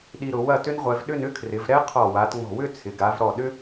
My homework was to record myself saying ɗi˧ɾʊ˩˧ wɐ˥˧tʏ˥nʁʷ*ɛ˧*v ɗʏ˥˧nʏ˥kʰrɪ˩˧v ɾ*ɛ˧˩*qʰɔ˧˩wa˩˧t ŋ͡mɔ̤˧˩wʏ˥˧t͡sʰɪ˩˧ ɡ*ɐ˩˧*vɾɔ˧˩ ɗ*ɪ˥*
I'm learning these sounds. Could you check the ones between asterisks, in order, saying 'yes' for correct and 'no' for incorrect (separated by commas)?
yes, no, no, no